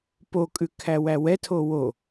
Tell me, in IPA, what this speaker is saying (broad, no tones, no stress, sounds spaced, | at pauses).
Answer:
p o kʼ ʉ kʰ æ w æ w ɛ tʰ o w o